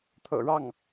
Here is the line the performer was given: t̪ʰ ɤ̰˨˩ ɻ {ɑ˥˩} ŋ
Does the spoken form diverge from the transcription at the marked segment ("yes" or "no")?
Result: no